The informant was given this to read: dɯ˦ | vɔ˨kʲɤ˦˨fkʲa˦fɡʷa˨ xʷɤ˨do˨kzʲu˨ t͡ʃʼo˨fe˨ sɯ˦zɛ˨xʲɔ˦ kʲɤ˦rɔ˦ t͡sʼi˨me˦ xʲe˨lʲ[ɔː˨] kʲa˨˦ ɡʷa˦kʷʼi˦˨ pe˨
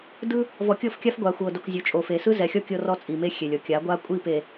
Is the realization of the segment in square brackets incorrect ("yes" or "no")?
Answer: yes